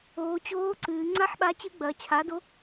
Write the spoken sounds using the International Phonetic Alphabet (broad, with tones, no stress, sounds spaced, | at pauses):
oː˩˧ t͡ɕ oː˧˥ ǀ ɨː˩˧ ŋ͡ǀ a˥ ħ ɓ a˧˥ t͡ɕ ɨ˧˥ ɡ͡b ɐː˩˧ t͡ɕʰ a˩˥ d o˧˥